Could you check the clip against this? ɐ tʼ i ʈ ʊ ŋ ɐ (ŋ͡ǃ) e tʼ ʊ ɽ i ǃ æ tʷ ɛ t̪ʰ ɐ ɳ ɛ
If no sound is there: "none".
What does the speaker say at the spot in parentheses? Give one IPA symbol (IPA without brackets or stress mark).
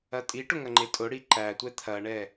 ŋ͡ǃ